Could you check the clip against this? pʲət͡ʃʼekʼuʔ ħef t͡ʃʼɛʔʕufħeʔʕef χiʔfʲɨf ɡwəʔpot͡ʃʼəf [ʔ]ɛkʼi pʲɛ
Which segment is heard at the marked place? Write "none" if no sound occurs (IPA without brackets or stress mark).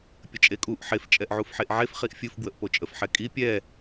ħ